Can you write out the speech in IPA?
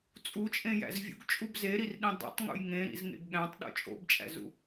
t͡sʼ u t͡ʃʼ ẽ j æ̰ z vʲ ṵ ɡ t͡ʃʼ u b z e ɾ i r ɗ ĩ dˤ ḛ tˤ ŋ ṵ j ŋ ẽ ɾ ḭ z ŋ ḛ ɡ ɠ æ̃ tˤ ɗ o̰ t͡ʃʼ o̰ b t͡ʃʼ æ̰ z ṵ

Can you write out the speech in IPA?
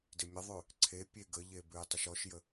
d ɪ mʲ ə ðˤ ʉ | ǀʰ e pʲ e ɡ ə ʎ e b ʉ j tˤ ɪ ʃ ɔ ʃ j ə

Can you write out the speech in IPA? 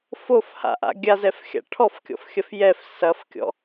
f o f h a̰ ʔ a̰ ɡʲ a z ɛ f xʲ a̰ ʈʰ ɔ f kʲ ɔ̰ f xʲ ɐ f j ɛ f s ɐ f kʲ ɔ̰

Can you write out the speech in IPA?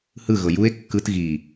h ɯ ɣ ɤ j u e̯ kː ɯ t ɣ i

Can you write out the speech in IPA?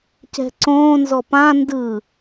c ɛ̤ ǀ õː n z ɔ p ã n d ɯ

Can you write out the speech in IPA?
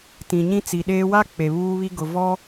t ĩ˨ ɲ ĩ˦ t͡s i˨ ɗ eː˦ w a˦ k͡p e˨ β uː˦ β i˦ ɡ ʊ˨ v ɔ˦

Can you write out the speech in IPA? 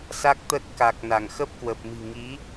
s a˦˥ k̚ t̪ ə˦˥ t̚ k a˨˩ k̚ n a˧˩ ŋ x ə˦˥ p̚ k w ə˨˩ p̚ m i̤˨˩ ŋ i˨˦

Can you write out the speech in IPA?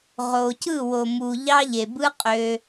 ʁ o˨ c ɯ˦˨ w o˨ m u˨ ʎ ɑ˧ ʎ e˨ b ɯ˦ qʼ ø˧

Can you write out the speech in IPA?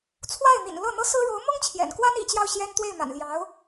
t͡sʰ w a˥˩ ɪ̯ n̪ ḭ˨˩ n l ɤ˥˩ n̪ ɤ˥ s ɹ̩˥ ɻ o˧˥ ʊ̯ m ʊ˥ ŋ t͡ɕʰ j ɛ̰˨˩ n k w a˥ n ḭ˨˩ t͡ɕ j ɑ˥˩ ʊ̯ ɕ j ɛ˥ n t̪ w e˥˩ ɪ̯ m a̰˨˩ n l j ɑ˧˥ ʊ̯

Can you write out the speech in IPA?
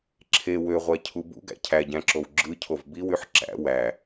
ǁʰ e w ø ʁʷ æ cʰ u b ṵ ɡ æ̰ cʰ æ ɟ æ̃ ǁ o w ɡ͡ǁ ɯ cʰ o v b i w y ħ ǁ æ̰ w æ

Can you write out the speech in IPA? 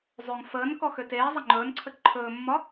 zˤ ø ŋ f əː n k ɔ x ø t eː zˤ ə ŋ͡ǃ ɵː n ǀʰ ə ǃʰ ɵː mː ɒ

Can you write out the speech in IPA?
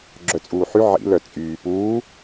ɡ͡ǁ œ t͡sʼ uː ħ y ʕ ḭ l œ t͡sʼ yː p uː

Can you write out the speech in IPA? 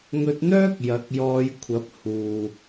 ŋ ɵ˧ t̚ n̪ œː˥ k̚ j ɐ˨˥ k̚ j ɔː˧ j kʷʰ ɐ˨˥ p̚ h uː˨

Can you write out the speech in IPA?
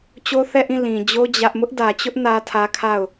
t͡ɕ o˦ θ ɛ˦˨ ʔ ĩ˦˨ l ĩ˨ d͡ʑ o˦ d͡ʑ ä˦ ʔ m ʊ˦ ʔ d ä˨ t͡ɕ ʊ˦ ʔ n ä˦ tʰ ä˦ kʰ a˦˨ ʊ̯

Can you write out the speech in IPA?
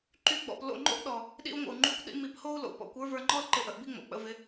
ǃ y˦ ɡ͡b ɔ̰˧ p l o̰˦˨ ŋ͡ǃ o̰˦ ʔ ɗ ɔ˨ | ɗ ḭ˧ u̯ ŋʷ ə̰˨ u̯ ŋ͡ǃ y˦ kʷ ɗ ḭ˦ m i˧ p h o˦ u̯ l o̰˨ p ɔ̰˨˦ kʷ ə˞˦ v ə˞˧ ŋ͡ǃ ɔ˦ l ǃ ɪ˧ ʔ ə˨ ʔ b i˦ ŋ͡m o̰˨ k͡p ə̰˧ v ɪ˧

